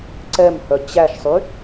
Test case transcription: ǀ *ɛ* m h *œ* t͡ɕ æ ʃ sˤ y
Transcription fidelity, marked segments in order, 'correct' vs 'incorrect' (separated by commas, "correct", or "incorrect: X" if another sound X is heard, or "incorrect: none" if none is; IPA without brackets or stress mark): correct, correct